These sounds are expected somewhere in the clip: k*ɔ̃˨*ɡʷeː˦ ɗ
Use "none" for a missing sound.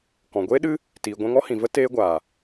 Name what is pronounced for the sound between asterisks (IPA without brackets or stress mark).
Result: ɔ̃˨